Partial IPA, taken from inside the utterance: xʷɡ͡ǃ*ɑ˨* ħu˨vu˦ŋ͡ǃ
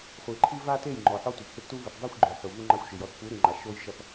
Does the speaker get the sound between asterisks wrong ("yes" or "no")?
yes